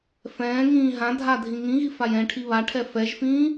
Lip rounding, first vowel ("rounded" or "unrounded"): unrounded